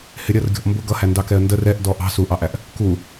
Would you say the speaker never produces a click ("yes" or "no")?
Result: yes